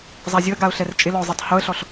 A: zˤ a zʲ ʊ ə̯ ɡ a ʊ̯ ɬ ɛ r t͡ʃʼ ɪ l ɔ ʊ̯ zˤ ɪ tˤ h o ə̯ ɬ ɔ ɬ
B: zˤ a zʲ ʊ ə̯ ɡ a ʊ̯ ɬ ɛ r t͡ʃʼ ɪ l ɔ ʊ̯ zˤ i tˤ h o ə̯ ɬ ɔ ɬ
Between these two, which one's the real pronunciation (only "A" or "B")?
B